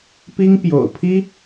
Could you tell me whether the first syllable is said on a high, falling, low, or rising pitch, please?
high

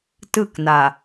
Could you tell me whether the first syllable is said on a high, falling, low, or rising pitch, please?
falling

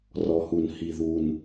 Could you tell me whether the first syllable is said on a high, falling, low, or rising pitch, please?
low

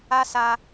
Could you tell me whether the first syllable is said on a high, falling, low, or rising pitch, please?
high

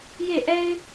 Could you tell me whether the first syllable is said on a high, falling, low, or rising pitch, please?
falling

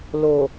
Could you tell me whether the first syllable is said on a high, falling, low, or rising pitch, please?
low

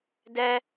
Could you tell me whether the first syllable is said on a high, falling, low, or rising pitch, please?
high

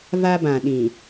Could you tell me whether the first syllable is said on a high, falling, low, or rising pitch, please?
high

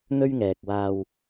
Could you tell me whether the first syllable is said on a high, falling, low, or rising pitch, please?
high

